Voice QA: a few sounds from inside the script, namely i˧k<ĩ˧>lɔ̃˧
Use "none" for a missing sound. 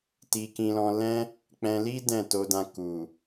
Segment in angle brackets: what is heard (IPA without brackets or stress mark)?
ĩ˧